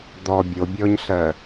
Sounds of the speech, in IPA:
d̪ ɔ bʲ o bʲ ɔ ɲ ɬ ɜ

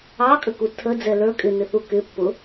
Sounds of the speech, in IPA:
ɑ kʼ ə k u tʰ ə d͡z ɛ l ə˞ kʼ ɪ n ɪ θ u k ɪ pː ʊ

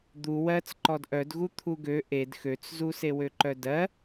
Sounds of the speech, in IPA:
d̪ u w ɜ t͡s ǃ ɔ d ʔ œ d ɣ u t̪ʰ u ɡ ø ʔ e d x ø t͡s z u s e w ø ǃ œ d ɜ

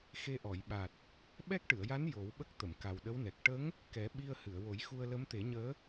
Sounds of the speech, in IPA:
x e˧ ʔ ɔ˨˩˨ j ɓ a˨˩ t̚ | ɓ ɛ˦˥ k̚ ʈ ɨ˨˩˨ ə̯ j a˧˥ n j o˨˩˦ w ɓ ə˦˥ k̚ t̪ ə˨˩˨ m k a˨˩ w ɗ ə˧˥ w n ɛ˨˩ k̚ ʈ ə˧˥ ŋ | k ɛ˨˩˦ ɓ i˧ ə̯ h ɨ˨˩˨ ə̯ w o˨˩˦ j x u˧ ə̯ l ə˧˥ m t̪ e˨˩˦ ɲ əː˧˥

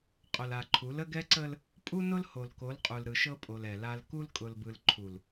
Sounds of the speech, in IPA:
qʼ ʊ˨ l a˨ ǃʰ u˨˦ l ə˦ ɡ ɛ˦ ǀ ə˦ l | pʼ u˦ n ʊ˦ l h o˨ l k o˨˦ l qʼ u˨ l ɾ ɯ˨ ʃ ɤ˦ pʼ o˨ l ɛ˨ l a˦ l k u˦ l kʼ ʊ˨ l b ɯ˨ l ǃʰ u˨ l

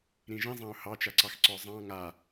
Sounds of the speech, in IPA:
ɾ ĩ ʒ ĩ zˤ ã ʊ̯ h ɑ t͡ʃ a ǀ ɑ x ǀ ɔ zˤ ɑ̃ ŋ a

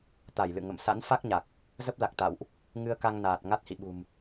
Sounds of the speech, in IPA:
t̪ a˧˩ j l ɨ̰˧˨ ŋ ə̰˧˨ m s a̰˧˥ n f a˦˥ k̚ ɲ a˨˩ k̚ | z ə˦˥ p̚ l a˨˩ k̚ t̪ a̰˧˨ w ʔ | ŋ ɨ˧ ə̯ k a˧ ŋ n aː˨˩ t̚ ŋ a˦˥ t̚ h ḭ˧˨ ɓ ṳ˨˩ m

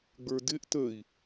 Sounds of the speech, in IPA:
ɡ͡b ə˞ d ɪ ʔ t ə i̯

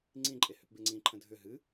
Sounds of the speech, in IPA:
ŋ͡ǀ ĩ ǃʼ e h ʏ p b e ŋ͡ǀ ĩ ǃʰ ə̃ dʱ ʏ ɦ ɨ

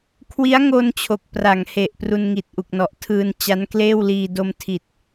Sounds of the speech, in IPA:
kʰ w i˦˥ a̯ ŋ o˧ n t͡ɕʰ o˨˩ k̚ p r a˩˦ ŋ h e˨˩ ʔ p r u˧ n ŋ i˨˩ t̚ ʔ u˨˩ k̚ n ɔ˨˩ ʔ tʰ ɯː˧ n t͡ɕ a˦˥ n k l eː˥˩ w l iː˧ d o˧ m tʰ i˨˩ t̚

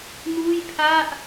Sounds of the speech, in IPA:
n uː˥˩ j pʰ a˥˩ ʔ

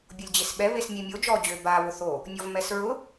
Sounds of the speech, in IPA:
bʲ o lʲ d͡ʑ e s ɓ ɛ β e s mʲ e mʲ o d͡ʒ ɔ d͡ʑ ø b a β ʊ θ o | nʲ ɔ v m ɛ s ɹ ʊ

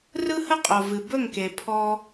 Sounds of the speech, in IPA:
r ɯ˦ h ə˦ qʼ o˨ v ɨ˨ b ɵ˦˨ ŋ k e˨ pʰ ɔ˧

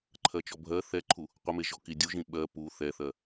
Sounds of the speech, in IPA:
ǃʰ ɜ t͡ʃ ɔ bʱ ɜ θ ɛ ǃʰ u | qʷ ə m e ʒ ɔ k i dʲ u ʒ ĩ ɓ ɜ p u θ ɛ θ ɜ

